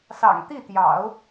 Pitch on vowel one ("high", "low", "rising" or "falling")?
low